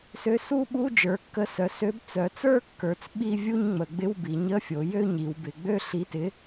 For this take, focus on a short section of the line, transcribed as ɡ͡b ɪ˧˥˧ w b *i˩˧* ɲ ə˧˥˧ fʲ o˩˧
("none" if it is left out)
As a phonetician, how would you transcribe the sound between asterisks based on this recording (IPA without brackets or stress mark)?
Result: i˩˧